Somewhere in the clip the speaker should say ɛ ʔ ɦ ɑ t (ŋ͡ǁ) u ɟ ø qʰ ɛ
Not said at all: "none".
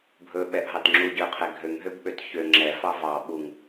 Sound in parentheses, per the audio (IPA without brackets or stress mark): ŋ͡ǁ